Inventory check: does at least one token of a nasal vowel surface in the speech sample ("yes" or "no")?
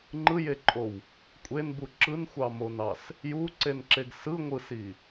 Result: no